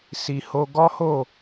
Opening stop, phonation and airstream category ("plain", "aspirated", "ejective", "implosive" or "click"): plain